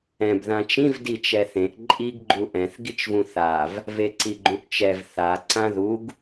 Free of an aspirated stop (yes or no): yes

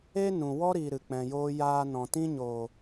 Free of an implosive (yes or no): yes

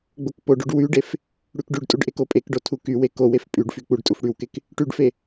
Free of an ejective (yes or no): no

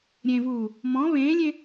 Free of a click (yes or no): yes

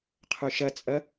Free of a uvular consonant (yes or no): no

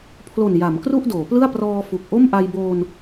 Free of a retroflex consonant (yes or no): yes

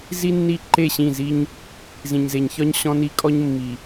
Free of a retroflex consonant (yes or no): yes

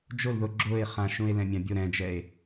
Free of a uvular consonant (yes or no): no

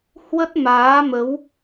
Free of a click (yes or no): yes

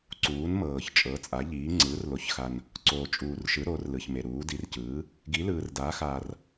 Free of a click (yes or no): no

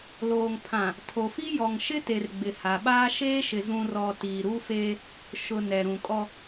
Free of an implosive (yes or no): no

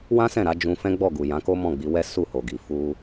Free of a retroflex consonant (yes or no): yes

